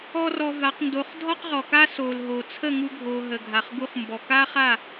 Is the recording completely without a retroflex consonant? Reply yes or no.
yes